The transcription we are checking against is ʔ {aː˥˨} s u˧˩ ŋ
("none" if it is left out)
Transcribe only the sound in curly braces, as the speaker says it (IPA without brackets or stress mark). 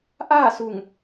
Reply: aː˥˨